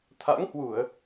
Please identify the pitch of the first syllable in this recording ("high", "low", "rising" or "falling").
rising